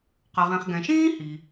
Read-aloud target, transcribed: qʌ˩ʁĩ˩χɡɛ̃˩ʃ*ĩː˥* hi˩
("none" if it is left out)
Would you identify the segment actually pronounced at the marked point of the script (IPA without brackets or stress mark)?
ĩː˥